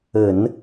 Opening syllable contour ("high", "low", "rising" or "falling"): low